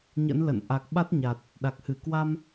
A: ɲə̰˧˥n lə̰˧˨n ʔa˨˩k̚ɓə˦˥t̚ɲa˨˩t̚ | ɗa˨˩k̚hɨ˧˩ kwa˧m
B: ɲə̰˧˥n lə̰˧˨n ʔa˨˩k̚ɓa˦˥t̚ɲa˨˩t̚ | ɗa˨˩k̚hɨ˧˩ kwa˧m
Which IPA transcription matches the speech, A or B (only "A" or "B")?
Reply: B